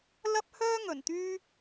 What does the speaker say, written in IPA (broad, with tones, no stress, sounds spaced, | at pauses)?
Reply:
l ɐ˥ p̚ h œː˥ ŋ ɵ˨˩ n t̪ yː˥